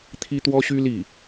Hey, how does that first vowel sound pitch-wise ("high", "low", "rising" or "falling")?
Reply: high